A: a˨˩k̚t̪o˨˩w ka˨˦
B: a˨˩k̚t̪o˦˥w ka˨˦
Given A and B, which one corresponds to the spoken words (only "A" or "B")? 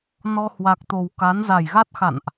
A